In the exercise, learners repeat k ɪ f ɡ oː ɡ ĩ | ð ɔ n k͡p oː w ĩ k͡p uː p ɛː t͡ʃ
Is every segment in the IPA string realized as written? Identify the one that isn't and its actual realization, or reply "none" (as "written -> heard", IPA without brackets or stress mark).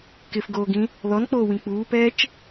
none